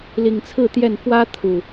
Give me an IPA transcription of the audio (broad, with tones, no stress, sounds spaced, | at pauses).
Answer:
l i˨˩ ŋ t͡sʰ ɹ̩˥˨ t̪ j ɛ˥˨ n f w ä˦ t̪ʰ u˨˩